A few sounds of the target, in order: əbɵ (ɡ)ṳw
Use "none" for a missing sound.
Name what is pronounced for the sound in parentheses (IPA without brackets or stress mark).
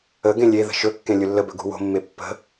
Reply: ɡ